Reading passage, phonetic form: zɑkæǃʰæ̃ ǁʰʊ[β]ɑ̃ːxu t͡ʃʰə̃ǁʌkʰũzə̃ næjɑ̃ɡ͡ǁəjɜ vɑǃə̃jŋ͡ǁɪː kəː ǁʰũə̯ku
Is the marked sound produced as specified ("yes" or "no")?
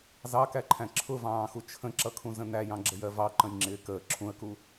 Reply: no